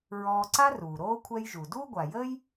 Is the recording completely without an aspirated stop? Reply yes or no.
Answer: no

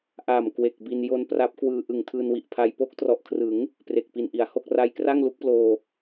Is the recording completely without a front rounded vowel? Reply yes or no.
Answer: yes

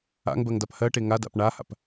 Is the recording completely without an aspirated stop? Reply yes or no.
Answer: yes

